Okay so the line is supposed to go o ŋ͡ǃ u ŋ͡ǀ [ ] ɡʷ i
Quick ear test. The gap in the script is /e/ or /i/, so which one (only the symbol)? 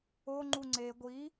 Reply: e